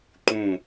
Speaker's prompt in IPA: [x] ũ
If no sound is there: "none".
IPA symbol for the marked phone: ǃ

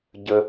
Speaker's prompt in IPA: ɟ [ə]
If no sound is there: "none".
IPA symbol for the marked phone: ə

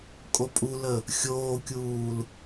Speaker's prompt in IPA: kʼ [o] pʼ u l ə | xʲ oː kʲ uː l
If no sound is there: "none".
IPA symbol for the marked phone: o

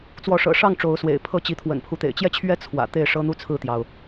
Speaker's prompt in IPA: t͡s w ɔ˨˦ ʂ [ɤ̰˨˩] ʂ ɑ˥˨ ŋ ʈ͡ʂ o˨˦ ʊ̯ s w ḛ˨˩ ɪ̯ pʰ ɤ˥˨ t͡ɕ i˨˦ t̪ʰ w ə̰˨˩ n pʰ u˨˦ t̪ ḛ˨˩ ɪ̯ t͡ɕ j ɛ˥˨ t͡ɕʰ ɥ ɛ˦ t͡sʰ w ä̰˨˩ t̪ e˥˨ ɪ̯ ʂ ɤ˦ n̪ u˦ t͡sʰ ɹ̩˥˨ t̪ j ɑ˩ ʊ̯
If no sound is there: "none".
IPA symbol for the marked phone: ɤ̰˨˩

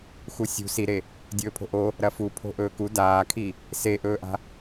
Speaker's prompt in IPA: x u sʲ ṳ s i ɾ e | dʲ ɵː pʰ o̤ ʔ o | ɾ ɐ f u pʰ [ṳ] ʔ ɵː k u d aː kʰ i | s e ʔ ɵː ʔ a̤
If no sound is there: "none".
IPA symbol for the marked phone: o̤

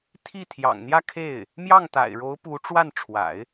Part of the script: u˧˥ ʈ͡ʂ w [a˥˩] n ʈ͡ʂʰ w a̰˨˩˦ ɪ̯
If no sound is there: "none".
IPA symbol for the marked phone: a˥˩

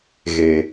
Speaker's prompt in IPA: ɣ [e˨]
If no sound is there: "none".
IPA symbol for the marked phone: e˨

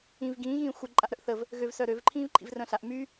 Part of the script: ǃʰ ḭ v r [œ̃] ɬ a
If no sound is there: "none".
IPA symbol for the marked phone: œ̃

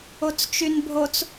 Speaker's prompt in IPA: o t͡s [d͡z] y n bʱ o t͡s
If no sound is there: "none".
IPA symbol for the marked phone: t͡ʃ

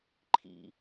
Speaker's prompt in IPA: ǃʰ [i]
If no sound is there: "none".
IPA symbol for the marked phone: ḭ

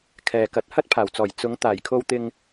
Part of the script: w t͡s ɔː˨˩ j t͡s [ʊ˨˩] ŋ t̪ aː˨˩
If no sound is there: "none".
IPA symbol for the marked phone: ʊ˨˧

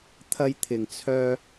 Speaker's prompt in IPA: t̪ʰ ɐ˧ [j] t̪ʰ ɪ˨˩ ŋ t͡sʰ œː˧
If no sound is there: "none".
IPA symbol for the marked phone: j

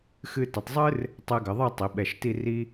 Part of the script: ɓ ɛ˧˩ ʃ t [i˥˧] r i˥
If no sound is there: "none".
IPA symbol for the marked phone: i˥˧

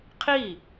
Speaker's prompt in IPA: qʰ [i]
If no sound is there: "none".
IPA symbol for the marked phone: i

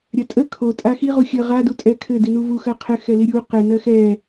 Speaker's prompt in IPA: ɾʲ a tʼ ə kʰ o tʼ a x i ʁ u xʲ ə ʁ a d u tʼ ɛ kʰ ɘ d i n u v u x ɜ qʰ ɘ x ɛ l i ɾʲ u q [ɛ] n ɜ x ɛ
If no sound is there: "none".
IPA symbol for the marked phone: ɘ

